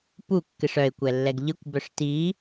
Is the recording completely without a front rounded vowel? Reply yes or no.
no